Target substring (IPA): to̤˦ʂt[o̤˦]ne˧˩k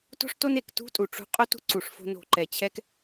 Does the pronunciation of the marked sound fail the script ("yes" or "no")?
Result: yes